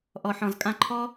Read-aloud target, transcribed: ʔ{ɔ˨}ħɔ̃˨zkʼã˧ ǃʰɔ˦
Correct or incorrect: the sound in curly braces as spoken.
correct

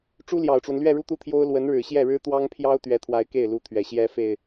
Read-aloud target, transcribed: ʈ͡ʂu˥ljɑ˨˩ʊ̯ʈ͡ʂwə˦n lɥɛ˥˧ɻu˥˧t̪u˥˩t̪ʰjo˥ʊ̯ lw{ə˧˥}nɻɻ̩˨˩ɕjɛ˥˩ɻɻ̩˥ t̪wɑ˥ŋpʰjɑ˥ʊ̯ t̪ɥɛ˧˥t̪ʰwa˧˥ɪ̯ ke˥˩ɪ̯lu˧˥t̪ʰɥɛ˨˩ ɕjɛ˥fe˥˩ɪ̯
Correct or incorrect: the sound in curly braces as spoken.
correct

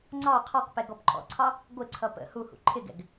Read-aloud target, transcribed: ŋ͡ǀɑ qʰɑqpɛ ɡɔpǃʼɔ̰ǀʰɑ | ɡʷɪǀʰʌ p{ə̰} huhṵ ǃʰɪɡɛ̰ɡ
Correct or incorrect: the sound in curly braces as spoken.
correct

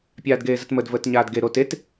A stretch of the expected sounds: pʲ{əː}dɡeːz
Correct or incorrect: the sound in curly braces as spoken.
incorrect: aː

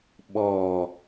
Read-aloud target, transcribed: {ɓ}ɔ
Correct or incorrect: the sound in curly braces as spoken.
correct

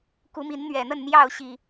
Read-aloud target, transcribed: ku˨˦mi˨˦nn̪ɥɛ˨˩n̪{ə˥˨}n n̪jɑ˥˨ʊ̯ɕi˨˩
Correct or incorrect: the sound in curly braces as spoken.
correct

